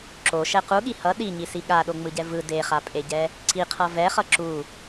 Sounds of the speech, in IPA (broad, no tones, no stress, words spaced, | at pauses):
ǁoʃɛ quɠi hʌ ɗiɲisi ɠaɗoŋ͡mɯɟɛ vɯ deχapʼeɟɛ | ǀiqʰʌ vɛχʌ ǁu